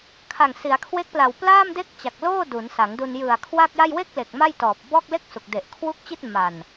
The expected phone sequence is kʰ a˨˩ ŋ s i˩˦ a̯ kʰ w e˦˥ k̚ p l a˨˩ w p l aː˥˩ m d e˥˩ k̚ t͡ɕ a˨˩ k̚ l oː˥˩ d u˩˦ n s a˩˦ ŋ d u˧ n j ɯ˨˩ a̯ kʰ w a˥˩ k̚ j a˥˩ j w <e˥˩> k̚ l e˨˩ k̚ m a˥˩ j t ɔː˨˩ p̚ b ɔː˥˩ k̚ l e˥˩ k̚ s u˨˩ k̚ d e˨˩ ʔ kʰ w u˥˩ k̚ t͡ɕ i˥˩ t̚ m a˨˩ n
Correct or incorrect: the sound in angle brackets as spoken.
correct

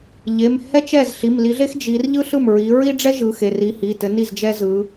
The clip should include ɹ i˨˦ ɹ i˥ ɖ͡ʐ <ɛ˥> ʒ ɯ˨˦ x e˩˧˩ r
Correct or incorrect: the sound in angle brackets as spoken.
correct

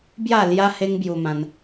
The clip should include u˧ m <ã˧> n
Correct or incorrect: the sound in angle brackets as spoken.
correct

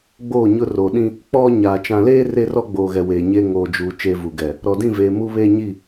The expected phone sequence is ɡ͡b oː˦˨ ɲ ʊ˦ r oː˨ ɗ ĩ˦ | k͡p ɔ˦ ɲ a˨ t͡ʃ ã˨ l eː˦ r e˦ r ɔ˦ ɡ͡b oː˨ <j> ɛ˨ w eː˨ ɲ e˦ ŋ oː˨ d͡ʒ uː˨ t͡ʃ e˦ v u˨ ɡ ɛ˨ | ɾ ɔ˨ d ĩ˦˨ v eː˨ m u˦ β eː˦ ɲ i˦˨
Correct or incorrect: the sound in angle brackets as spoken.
incorrect: ɣ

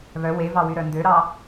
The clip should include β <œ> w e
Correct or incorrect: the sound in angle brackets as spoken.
correct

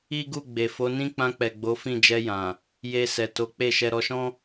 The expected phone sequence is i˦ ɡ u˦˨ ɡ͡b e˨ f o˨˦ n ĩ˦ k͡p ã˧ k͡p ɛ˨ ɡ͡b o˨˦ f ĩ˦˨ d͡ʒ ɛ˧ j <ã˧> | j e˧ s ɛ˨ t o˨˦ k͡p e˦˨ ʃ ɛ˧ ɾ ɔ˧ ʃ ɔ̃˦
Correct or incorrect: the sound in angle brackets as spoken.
incorrect: ã˨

